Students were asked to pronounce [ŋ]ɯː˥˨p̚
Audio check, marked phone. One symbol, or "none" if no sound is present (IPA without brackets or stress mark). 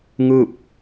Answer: ŋ